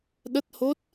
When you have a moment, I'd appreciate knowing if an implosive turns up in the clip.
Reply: yes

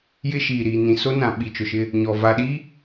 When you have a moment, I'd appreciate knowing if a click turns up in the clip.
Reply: no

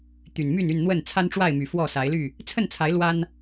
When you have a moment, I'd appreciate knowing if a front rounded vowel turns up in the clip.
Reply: yes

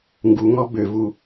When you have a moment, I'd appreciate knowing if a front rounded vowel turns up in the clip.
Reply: yes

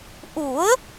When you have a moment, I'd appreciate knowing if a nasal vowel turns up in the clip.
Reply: no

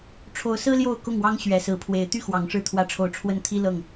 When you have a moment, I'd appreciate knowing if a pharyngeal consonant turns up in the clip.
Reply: no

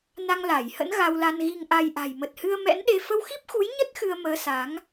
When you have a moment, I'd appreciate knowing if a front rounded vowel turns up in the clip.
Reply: no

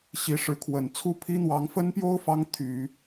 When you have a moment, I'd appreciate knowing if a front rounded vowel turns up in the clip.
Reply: yes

